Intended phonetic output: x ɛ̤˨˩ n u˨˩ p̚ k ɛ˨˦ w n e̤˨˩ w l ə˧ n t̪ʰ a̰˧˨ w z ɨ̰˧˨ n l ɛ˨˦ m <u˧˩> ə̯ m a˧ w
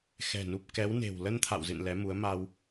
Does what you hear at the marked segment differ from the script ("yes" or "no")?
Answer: yes